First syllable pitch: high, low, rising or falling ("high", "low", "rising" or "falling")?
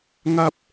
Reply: high